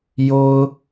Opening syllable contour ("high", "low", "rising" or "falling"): high